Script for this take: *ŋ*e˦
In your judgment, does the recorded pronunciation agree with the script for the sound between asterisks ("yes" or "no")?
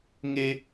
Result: yes